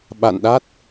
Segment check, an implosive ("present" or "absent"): present